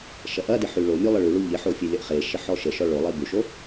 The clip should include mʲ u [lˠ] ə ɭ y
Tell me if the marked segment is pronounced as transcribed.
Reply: yes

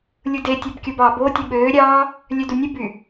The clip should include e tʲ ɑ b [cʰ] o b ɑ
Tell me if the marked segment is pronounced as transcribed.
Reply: no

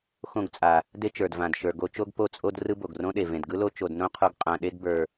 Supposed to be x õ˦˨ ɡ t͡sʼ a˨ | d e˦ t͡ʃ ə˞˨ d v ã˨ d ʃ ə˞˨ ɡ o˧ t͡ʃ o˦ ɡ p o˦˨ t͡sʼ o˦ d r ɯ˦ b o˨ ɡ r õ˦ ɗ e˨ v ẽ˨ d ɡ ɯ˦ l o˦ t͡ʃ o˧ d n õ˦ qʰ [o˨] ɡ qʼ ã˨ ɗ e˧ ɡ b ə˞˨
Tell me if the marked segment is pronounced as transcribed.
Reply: no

